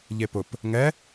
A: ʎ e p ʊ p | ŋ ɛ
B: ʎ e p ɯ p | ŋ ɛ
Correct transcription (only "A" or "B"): A